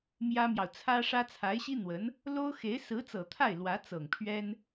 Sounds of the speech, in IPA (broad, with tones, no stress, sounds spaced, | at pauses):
m j ä˥ m j ɑ˨ ʊ̯ t͡sʰ ä˥ ʂ ä˥ t͡sʰ a˧˥ ɪ̯ ɕ i˥ n̪ w ə˧˥ n | l o˥ ʊ̯ x e˧˥ ɪ̯ s ɹ̩˧˥ t͡s ɤ˨˩ t̪ʰ a˥˩ ɪ̯ l w ä˧˥ t͡s ɤ˨˩ ŋ pʰ ɥ ɛ˥ n